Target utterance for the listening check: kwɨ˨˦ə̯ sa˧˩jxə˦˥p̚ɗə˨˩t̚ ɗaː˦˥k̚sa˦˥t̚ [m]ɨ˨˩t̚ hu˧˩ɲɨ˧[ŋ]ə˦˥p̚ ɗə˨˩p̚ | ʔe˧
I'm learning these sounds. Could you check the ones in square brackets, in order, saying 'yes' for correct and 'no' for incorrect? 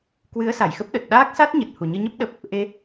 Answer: no, no

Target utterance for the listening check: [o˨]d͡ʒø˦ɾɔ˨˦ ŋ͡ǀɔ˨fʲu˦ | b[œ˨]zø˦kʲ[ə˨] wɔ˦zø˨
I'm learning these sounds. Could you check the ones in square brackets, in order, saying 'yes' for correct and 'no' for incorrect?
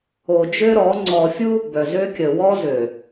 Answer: yes, yes, yes

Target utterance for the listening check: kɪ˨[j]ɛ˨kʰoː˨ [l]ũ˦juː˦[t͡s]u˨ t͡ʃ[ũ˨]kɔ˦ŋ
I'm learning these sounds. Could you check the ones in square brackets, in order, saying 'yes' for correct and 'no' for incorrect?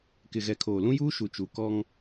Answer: no, yes, no, no

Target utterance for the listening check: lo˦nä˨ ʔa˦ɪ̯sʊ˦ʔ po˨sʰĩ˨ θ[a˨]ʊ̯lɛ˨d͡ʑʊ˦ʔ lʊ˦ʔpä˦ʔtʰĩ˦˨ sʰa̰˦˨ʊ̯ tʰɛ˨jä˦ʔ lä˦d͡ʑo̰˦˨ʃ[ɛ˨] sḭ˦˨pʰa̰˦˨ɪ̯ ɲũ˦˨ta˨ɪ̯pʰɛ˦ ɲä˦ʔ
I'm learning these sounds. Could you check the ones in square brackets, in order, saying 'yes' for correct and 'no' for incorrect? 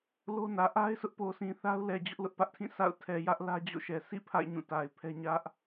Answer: no, yes

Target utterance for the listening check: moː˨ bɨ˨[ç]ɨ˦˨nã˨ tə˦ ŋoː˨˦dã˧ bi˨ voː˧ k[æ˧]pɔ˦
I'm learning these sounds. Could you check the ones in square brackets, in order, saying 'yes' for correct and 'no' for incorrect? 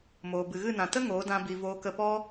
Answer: no, no

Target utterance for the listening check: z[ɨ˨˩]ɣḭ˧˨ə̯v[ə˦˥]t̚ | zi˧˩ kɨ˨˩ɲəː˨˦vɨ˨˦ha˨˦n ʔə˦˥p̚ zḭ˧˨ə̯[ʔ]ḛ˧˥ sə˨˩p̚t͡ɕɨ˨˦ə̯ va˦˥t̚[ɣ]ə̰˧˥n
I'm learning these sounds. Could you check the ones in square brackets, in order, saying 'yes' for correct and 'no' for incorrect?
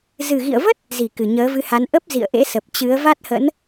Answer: yes, yes, yes, no

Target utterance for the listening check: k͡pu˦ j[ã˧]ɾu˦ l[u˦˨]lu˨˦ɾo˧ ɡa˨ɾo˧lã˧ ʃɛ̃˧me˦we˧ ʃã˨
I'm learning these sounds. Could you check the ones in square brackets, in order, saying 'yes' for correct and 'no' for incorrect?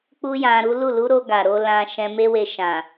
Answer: yes, yes

